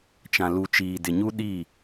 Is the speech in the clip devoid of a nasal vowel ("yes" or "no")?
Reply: no